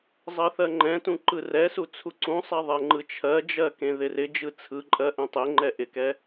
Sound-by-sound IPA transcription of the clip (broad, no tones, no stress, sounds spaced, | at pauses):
zˤ ɜ θ ɜ ŋ͡ǃ ɛ̃ t ũ ǃ ɯ r ɛ s u t͡sʰ u ǀ ũ sˤ ɛ ðˤ ɛ ŋ͡ǃ ɯ t͡ʃʰ ɜ d͡ʒ ɜ k ẽ ð ɪ r ɪ d͡ʒ ɯ t͡sʰ ɯ ǃʼ ɜ ʔ ɛ̃ tˤ e ŋ͡ǃ ɛ ʔ ɪ k ɛ